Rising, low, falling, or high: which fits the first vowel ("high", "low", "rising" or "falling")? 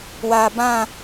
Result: low